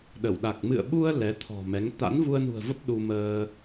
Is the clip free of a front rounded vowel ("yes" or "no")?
yes